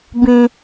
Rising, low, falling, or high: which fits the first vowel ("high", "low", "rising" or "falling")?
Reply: high